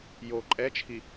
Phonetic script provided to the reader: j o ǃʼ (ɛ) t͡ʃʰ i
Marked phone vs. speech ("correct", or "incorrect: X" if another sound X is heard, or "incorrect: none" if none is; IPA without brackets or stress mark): correct